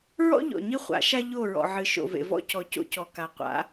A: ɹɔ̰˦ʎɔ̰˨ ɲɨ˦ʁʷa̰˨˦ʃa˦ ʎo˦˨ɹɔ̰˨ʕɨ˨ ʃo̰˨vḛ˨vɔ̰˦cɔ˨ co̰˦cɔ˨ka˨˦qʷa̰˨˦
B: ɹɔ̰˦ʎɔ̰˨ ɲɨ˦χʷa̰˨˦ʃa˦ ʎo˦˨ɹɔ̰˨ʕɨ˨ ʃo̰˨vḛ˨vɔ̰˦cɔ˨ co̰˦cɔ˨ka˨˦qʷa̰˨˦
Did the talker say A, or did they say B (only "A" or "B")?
B